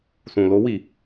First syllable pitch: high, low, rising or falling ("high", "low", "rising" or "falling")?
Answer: low